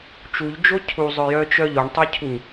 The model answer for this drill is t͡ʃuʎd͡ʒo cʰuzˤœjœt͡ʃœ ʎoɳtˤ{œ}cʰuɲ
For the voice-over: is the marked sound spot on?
yes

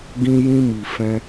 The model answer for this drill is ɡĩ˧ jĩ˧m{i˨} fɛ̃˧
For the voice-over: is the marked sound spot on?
yes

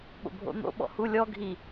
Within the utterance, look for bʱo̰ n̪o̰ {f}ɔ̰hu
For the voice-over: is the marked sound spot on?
no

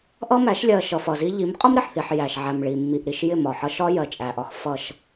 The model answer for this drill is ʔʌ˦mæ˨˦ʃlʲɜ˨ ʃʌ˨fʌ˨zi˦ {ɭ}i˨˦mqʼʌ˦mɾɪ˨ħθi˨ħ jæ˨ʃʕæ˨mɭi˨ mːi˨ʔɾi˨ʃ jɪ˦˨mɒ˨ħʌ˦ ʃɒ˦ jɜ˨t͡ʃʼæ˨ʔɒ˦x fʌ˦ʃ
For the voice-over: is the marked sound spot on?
no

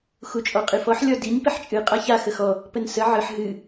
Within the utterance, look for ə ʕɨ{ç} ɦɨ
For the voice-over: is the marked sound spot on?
no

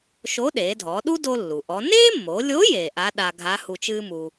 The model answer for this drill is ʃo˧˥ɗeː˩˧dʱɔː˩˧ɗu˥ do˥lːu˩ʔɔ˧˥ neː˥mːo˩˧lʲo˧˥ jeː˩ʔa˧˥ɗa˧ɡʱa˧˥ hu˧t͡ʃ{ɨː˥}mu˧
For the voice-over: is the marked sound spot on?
yes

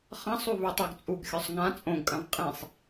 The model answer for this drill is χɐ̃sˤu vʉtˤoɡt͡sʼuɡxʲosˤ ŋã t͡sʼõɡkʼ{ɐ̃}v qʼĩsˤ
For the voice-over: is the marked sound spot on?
yes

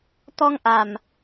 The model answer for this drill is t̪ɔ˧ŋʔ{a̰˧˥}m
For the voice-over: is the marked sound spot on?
no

